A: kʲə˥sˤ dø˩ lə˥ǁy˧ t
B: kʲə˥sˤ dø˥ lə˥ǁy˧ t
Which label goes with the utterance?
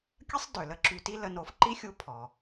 A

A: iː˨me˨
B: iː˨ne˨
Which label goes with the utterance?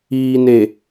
B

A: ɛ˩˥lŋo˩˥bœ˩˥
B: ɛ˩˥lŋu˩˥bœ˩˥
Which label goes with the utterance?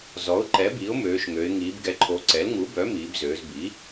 B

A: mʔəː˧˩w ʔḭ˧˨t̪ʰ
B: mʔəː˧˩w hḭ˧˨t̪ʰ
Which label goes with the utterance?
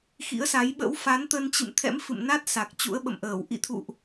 A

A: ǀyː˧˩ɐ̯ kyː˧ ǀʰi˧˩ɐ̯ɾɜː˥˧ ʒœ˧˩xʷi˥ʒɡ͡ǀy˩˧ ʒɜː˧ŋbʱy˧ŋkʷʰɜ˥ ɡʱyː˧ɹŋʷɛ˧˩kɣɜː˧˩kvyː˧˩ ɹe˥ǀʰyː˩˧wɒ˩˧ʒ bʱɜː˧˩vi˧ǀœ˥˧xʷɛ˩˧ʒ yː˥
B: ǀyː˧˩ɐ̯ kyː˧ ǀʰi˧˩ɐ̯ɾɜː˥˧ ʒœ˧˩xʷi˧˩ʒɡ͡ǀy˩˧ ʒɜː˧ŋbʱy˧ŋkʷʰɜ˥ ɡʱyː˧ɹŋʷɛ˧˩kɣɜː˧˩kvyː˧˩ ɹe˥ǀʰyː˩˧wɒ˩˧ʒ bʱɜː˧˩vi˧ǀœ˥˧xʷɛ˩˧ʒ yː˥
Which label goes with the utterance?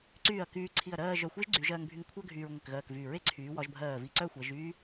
A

